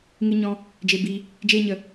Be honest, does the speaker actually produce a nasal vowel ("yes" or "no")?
yes